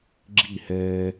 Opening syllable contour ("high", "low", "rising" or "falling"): falling